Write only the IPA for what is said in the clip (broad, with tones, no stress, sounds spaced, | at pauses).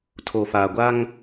tʰ o˨ f aː˨ ɡʷ a˦ ŋ